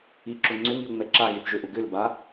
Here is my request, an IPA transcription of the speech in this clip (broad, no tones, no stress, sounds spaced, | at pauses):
i ǁ ʊ ŋ͡ǀ ʏ ŋ i ʊ̯ ŋ͡m ɛ ǁ a ɣ i θ ʒ ø ʔ ʊ ɡ ʏ l b a